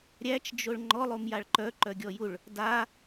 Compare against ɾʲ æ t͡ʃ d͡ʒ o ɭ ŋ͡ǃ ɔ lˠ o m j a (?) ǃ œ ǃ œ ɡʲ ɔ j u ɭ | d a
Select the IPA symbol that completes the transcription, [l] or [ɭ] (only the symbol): ɭ